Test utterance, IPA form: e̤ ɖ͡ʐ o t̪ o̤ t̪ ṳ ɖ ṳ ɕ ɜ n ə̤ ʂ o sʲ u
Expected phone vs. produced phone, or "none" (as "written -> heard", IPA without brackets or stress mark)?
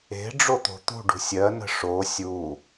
ɕ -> sʲ